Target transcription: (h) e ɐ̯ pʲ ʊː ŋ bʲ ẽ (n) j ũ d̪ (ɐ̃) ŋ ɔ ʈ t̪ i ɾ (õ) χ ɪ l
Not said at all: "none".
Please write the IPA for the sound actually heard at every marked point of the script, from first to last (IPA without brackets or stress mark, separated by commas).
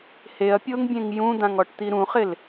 h, ŋ, ã, ũ